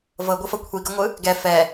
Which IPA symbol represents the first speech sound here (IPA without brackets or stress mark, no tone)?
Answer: v